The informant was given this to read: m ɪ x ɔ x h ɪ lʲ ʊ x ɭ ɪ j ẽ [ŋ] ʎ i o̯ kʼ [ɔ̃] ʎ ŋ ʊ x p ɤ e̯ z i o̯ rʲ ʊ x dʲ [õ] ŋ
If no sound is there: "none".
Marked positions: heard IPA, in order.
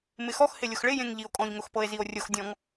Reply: ŋ, ɔ̃, ɔ̃

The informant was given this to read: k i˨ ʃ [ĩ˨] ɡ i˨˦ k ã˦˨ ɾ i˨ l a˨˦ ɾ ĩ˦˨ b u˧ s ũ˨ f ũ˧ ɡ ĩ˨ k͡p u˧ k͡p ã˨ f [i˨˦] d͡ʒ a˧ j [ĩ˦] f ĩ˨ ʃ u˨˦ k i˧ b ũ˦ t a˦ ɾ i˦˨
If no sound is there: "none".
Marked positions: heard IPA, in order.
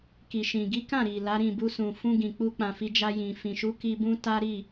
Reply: ĩ˨, i˨˦, ĩ˨

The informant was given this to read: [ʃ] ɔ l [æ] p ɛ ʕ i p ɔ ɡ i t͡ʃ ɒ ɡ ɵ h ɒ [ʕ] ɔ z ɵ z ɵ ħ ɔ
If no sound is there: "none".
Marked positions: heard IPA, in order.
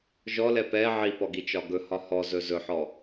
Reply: ʒ, ɛ, h

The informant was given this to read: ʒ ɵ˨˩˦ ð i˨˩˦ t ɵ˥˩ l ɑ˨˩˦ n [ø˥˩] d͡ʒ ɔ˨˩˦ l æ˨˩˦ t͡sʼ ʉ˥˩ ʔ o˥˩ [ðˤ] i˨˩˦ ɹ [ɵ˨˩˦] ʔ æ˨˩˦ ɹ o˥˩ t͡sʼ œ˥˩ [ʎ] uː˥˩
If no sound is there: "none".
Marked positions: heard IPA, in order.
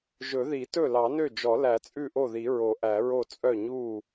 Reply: ø˥˩, ð, o˨˩˦, ɲ

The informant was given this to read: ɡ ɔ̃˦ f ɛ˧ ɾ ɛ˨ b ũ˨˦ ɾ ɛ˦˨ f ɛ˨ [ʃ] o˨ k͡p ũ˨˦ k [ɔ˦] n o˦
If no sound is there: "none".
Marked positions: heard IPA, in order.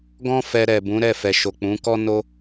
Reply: ʃ, ɔ˦

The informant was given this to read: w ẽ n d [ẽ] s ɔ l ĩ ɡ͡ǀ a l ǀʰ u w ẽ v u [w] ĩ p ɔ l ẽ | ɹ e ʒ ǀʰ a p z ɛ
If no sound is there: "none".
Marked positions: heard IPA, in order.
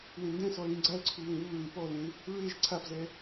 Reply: ɛ̃, ɹ

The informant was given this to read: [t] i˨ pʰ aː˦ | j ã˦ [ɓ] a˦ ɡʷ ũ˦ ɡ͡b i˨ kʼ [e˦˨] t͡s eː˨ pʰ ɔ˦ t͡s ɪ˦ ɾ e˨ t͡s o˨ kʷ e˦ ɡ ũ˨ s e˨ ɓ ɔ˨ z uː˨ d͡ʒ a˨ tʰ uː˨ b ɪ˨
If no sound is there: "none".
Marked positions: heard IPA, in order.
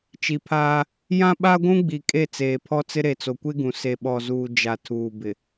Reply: t͡ʃ, ɓ, e˦˨

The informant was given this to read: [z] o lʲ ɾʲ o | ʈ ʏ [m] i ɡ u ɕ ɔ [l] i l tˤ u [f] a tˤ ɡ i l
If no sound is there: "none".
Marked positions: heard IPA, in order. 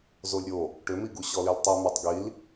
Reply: z, m, l, m

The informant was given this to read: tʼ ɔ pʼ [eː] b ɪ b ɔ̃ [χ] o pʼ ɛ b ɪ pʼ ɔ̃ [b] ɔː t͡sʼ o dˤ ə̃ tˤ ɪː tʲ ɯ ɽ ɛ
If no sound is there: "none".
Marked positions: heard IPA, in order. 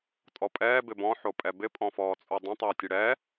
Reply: ɛː, ħ, f

